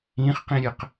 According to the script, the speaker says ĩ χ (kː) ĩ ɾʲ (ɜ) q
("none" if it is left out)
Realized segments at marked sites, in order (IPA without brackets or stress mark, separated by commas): q, ɜ